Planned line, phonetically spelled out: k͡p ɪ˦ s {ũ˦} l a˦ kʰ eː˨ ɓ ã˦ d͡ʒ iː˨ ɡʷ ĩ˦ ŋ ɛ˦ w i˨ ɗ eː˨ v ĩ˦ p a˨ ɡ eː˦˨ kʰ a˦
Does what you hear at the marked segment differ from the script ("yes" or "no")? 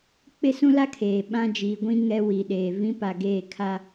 no